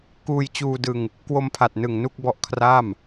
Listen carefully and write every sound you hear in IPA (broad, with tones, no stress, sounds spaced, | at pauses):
k uː˧ j t͡ɕ uː˧ d ɯ˧ ŋ | k w o˧ m pʰ a˨˩ t̚ n ɯ˨˩ ŋ n u˥˩ k̚ b ɔ˦˥ ʔ kʰ r aː˥˩ m